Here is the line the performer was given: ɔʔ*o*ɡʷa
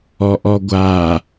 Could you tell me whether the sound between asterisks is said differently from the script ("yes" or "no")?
yes